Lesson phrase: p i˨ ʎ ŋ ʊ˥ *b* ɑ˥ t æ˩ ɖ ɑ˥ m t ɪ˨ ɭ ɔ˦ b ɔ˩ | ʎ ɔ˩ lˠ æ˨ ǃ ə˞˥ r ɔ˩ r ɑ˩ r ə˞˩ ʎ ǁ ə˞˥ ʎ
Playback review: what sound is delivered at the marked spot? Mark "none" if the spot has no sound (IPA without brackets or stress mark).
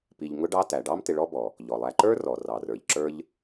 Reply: ɖ